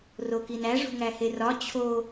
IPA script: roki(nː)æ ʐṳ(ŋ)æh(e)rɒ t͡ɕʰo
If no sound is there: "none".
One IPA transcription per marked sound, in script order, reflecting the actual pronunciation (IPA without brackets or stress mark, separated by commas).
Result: n, ŋ, e